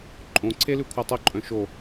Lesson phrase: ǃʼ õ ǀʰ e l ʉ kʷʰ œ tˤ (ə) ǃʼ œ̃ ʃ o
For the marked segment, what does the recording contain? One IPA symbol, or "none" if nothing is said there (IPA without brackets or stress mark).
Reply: ʊ